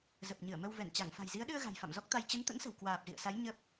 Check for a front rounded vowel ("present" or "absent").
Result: absent